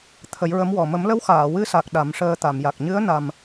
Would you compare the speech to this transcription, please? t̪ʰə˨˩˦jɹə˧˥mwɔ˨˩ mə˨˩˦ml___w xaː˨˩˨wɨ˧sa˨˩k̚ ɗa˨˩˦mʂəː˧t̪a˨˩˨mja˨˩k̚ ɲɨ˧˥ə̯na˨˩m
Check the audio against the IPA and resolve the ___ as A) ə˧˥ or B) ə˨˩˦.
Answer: A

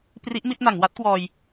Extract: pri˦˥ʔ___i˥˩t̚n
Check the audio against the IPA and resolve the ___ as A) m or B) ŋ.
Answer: A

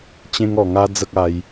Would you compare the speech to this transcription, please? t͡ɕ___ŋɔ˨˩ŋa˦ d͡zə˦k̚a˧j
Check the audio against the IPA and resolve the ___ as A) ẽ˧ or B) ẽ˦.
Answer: B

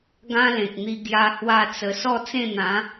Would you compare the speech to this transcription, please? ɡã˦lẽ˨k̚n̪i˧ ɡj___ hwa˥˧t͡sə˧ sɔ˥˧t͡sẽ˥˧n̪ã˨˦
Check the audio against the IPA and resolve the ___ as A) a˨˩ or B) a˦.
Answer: B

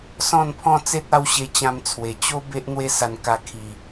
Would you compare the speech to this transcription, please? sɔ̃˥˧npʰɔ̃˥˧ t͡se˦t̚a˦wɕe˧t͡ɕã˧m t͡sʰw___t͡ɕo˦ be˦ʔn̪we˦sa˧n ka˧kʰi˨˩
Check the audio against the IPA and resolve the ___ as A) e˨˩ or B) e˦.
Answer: A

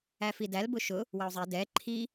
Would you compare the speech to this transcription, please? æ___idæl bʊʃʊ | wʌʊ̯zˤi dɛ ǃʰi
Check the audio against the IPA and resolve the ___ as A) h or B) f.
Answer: B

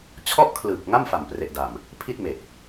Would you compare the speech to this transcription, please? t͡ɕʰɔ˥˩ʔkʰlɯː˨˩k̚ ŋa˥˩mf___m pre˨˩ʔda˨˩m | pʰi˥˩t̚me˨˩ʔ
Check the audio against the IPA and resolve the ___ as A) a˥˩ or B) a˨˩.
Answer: B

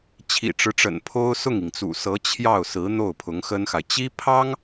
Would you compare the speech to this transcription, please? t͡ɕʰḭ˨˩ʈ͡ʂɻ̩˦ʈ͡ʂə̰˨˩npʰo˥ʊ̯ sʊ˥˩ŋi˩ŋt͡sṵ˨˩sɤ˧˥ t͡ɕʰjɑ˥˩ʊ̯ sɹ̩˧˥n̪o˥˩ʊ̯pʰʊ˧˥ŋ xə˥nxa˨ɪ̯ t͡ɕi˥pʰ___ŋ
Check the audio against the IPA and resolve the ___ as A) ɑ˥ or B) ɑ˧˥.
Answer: A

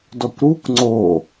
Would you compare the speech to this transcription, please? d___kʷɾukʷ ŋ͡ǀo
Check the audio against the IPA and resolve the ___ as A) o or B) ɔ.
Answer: B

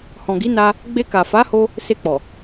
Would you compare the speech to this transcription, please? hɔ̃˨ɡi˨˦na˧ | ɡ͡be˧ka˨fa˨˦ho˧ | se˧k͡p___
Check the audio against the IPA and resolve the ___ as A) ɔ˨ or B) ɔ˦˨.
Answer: A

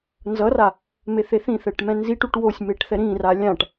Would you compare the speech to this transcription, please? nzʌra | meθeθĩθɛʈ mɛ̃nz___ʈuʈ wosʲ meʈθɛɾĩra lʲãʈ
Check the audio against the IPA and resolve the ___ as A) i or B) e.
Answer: A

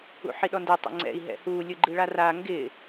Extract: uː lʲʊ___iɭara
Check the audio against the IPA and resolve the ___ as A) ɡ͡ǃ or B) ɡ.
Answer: A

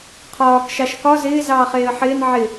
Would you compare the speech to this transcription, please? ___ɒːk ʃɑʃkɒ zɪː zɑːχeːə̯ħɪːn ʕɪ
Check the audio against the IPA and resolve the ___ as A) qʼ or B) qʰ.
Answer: B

